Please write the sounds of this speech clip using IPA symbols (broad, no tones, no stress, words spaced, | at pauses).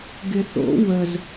ɡɪθo̰ wəz